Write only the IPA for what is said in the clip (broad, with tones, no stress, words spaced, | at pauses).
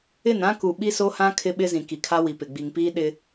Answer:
ɪ˦˨nã˦ku˨ ɓi˦so˦hã˦ kʰɪ˦ ɓɪ˦zĩ˨ ki˨kʰa˦ wi˨pɪ˨ɡ͡bi˨ŋpiː˦ ɗɪ˦